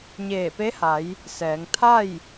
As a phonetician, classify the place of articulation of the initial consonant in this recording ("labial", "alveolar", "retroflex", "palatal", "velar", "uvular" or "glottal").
palatal